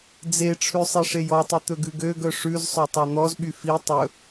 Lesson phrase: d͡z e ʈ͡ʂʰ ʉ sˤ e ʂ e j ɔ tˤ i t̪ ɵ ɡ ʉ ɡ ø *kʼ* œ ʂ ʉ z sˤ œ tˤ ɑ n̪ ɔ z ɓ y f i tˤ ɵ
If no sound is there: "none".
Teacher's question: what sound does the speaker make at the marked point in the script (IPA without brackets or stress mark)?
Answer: ɡ